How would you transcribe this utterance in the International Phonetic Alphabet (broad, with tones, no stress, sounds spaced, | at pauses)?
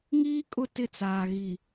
ŋ iː˦ kʼ ʊ˦˨ t ɪ˦˨ t͡s aː˨ ɣ i˨